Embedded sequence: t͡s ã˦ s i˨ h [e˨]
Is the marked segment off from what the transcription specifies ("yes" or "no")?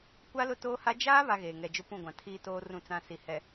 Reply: yes